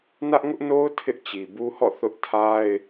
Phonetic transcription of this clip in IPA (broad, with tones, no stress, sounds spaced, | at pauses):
n ä˦ ʔ ŋ ʊ˦ ʔ n o˦ ʊ̯ tʰ ɪ˦ ʔ t͡ɕ i˨ b u˦ h ɔ̰˦˨ θ ʊ˦ ʔ tʰ a˦ ɪ̯